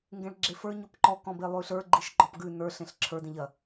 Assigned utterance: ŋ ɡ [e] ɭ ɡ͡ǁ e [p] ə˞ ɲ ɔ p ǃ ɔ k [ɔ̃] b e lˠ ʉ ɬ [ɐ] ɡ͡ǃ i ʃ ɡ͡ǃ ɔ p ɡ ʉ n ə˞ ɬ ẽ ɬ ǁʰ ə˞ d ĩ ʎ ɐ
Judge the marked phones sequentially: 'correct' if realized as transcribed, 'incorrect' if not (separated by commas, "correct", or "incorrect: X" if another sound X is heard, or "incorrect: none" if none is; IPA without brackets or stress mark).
incorrect: ẽ, incorrect: f, correct, incorrect: ə˞